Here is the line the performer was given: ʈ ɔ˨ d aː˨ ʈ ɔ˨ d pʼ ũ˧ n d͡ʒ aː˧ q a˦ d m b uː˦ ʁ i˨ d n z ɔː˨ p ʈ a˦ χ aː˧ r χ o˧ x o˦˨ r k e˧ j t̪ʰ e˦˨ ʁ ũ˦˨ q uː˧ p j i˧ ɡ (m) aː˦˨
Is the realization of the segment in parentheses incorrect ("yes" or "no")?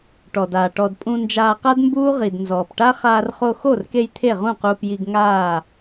yes